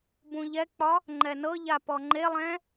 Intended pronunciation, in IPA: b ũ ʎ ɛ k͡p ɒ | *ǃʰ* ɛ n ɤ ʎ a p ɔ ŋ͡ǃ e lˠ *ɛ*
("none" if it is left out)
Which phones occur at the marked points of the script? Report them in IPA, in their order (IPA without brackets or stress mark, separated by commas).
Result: ŋ͡ǃ, ɛ̃